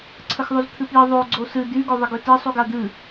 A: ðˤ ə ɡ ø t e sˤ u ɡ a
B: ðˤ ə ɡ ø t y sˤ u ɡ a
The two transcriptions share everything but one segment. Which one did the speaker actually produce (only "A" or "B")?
A